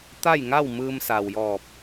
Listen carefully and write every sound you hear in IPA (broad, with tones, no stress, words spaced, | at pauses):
t̪a˥˨jŋa˥˨wmɯː˧m sa˩wjɔː˧˩p̚